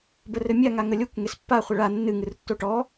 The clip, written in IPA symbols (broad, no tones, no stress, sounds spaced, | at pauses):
b ə r ɘ mʲ a ŋ a ŋ ə lʲ o kʷ ŋ e s pː a χʷ ə ɭ a nː ɨ ŋ ɨ r tː o ʈ ɔ